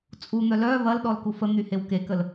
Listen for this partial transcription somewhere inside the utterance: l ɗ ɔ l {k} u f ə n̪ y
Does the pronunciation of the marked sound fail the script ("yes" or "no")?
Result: no